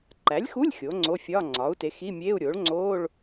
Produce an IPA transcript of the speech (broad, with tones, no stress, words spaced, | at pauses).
ǃæ˩˥lʲxu˧˥˧lʲ xʲoː˩˥ŋ͡ǀo˧˥˧fʲɒː˧˥˧ ŋ͡ǀɒː˩˥u̯te˩˥ xi˧˥˧mʲeː˧˥˧u̯ɾʲoː˩˥ɭŋ͡ǀoː˧˥˧ɭ